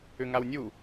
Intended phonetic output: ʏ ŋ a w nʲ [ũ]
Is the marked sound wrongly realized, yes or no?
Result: yes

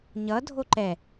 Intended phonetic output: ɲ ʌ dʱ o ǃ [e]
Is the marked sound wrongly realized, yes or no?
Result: yes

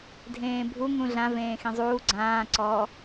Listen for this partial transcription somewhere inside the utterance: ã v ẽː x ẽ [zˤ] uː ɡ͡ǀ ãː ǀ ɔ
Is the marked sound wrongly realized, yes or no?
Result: no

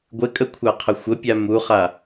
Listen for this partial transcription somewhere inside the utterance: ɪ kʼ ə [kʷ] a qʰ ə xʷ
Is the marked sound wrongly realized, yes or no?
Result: yes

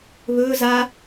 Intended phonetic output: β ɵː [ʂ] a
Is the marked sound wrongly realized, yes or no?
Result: yes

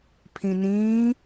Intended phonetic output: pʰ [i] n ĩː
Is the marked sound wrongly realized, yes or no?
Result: yes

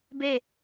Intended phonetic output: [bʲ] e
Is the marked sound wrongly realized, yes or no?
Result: yes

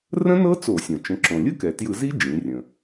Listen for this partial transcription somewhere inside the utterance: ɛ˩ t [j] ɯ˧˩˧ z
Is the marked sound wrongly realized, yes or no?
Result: no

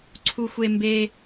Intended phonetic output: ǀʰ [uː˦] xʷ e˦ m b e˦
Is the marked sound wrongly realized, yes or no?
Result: yes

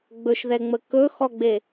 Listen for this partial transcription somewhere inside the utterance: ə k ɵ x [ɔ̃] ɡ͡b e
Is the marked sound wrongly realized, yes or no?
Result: yes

